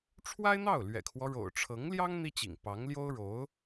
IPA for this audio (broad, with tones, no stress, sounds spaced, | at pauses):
ʈ͡ʂʰ w a˥ ɪ̯ n̪ ɑ˥˩ ʊ̯ l ɥ ɛ̰˨˩ kʰ w ɔ˦ ɻ o̰˨˩ ʊ̯ ʈ͡ʂʰ ɤ˧˥ ŋ l j ɑ˥ ŋ n̪ i˥ t͡ɕ ḭ˨˩ ŋ p ɑ˧˥ ŋ l j o˥ ʊ̯ ɻ o˧˥ ʊ̯